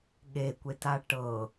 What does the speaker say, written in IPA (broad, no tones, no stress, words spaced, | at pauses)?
ɠekʷeta ʈɤ